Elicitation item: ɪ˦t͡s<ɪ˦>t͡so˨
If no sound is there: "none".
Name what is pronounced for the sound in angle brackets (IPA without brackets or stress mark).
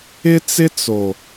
ɪ˦